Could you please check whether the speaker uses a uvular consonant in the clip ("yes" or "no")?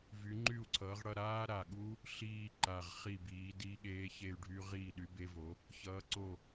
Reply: yes